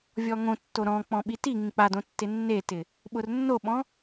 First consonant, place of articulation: labial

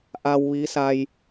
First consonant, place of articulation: glottal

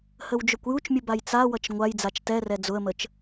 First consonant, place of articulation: glottal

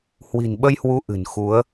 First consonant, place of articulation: glottal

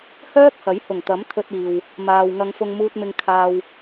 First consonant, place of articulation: glottal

